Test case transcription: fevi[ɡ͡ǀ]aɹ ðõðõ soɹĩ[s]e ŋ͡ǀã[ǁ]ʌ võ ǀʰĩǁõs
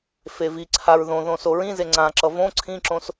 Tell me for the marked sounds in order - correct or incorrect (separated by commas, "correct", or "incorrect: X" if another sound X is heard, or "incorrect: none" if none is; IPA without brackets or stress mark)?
incorrect: ǀʰ, incorrect: z, correct